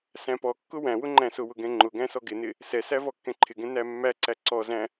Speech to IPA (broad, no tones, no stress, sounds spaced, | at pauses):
s æ̃ p ɔ kː ʊ w æ̃ w ʊ ŋ͡ǃ æ̃ s ʊ w ʊ ɡ ɛ̃ ŋ͡ǃ ʊ ɡ æ̃ s ɔ ɡ ɪ n ɪ | s ɛ s æ v ɔ kː ɛ̃ ǃʰ ɪ ɡ ɛ̃ n æ mː æ ǀ æ ǀ ɔ z æ̃